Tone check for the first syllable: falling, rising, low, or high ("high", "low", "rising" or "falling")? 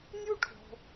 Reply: high